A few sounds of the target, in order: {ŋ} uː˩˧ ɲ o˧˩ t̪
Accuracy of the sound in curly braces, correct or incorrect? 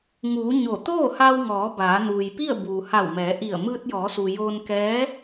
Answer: correct